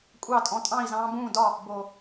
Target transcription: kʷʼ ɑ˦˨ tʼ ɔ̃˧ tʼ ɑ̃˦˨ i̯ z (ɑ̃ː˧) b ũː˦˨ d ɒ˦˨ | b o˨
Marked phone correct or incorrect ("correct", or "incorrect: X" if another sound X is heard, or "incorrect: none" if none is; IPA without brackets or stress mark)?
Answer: correct